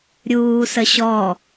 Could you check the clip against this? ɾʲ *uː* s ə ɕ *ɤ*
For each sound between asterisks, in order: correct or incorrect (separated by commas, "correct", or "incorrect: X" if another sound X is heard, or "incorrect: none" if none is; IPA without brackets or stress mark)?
correct, incorrect: ɔ